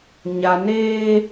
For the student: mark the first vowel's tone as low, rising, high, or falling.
low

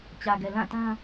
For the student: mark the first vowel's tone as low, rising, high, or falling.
low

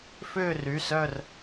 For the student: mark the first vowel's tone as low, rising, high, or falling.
falling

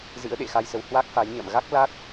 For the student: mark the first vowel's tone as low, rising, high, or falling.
rising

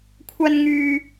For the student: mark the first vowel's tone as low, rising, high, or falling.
high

